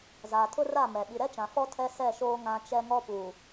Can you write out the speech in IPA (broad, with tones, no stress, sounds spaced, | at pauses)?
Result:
z aː˨ tʰ ʊ˦ r a˦˨ m ɛ˨ ɓ i˨ ɾ ɛ˦ t͡ʃ ã˨ f ɔ˦ tʰ ɛ˦ s ɛ˦˨ ʃ oː˦ ŋ ã˦ t͡ʃ ɛ˦ ŋ ɔ˦ p uː˨